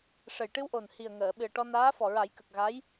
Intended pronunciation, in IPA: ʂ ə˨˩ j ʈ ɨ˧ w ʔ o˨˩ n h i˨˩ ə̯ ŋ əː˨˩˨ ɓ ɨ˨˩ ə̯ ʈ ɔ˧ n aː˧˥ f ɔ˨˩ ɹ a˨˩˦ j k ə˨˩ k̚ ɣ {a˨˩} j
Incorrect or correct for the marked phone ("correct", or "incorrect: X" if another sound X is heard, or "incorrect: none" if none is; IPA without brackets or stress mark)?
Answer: incorrect: a˧˥